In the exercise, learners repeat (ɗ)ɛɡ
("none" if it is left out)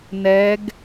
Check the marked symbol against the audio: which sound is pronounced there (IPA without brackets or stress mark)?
n